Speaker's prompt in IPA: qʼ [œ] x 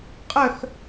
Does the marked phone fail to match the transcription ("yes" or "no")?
no